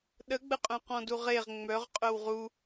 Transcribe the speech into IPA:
ɗəɡ͡bəqʼœ̃ qɔ̃duʁeʁ ŋ͡mœʁ qʼœwʁu

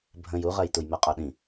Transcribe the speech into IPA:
bʱə̃j uʁɜj tujmɜqʼɒɗĩ

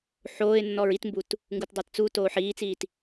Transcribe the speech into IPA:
ħoːɪ̯nːɔɹ itmbut | ŋɡutdˤatt͡su toːħiːt͡siːt

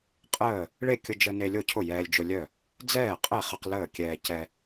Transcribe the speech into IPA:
qʼəː˥˩ | ɭe˥˩kʲʊ˧d͡ʒə˧ ne˧lʲo˥˩cʰʊ˥˩ jɛː˧lʲd͡ʒʊ˧lʲœ˥˩ | d͡zɛː˥˩qʼɛ˥˩χə˧q ləː˥˩kʲɛː˧ cɛ˧

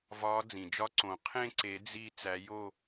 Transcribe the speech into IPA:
vɒ˨˦ d͡zĩ˩d͡ʒɒ˦˥ǀõ˨˩˦ qʰẽ˥˧ǀe˨˩˦ d͡zi˥˧ t͡sæ˨˦jo˥˧

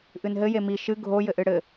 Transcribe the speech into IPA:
ʔɨnɦɘje mi ʃɨ ɡʱo jɘʔɨɽɘ

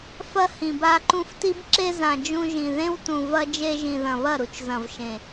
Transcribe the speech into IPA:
fɐ˧ hĩ˨ba˧ǃũ˧fti˦b ǁe˧zã˨ d͡ʒũ˧ʒĩ˨ðẽ˦wtũ˨ vɐ˧d͡ʒe˧ʒĩ˨ðɐ̃˨ βɐ˦˨ɾu˧t͡ʃzɐ̃˨vʃẽ˨

